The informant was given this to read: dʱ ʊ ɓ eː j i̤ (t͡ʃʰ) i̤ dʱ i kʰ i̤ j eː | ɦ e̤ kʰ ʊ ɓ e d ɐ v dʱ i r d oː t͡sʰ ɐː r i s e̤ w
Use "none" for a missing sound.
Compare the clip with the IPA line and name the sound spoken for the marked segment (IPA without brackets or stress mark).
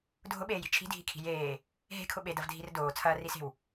t͡ʃʰ